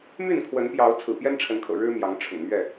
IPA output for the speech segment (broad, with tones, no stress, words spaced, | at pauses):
my˥˨nkʰwə˨˦npjɑ˨˦ʊ̯ t͡sʰɹ̩˨˩pjɛ˦nʈ͡ʂʰə˨˦nkʰɤ̰˨˩ ɻɻ̩˦mjɑ˨˦ŋ ʈ͡ʂʰʊ̰˨˩ŋmɥɛ˥˨